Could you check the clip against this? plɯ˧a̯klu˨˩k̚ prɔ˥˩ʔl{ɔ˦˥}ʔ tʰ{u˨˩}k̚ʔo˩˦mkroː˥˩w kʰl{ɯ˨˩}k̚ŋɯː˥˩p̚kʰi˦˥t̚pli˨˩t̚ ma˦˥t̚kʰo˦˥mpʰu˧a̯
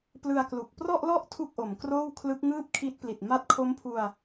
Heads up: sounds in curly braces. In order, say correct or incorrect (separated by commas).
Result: incorrect, incorrect, incorrect